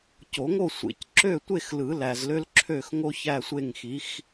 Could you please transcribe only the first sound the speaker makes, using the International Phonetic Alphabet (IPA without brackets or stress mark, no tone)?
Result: c